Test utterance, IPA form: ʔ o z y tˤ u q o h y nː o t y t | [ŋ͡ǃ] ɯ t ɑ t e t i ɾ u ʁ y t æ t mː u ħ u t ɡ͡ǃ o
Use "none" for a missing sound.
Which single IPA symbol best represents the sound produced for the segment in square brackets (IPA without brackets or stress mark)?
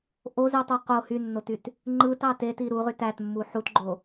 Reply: ŋ͡ǃ